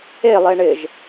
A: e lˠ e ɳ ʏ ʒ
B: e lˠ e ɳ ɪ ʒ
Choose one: B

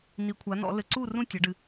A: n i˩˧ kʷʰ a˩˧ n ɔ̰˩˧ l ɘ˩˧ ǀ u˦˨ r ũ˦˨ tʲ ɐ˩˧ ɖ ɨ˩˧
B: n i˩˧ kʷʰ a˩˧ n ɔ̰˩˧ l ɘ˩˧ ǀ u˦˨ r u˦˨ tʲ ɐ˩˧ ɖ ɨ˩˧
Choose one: A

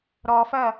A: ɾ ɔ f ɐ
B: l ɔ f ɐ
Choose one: A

